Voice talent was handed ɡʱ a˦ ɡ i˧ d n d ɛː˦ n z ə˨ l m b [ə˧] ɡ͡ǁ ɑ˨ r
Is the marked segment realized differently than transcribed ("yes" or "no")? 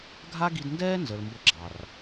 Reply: no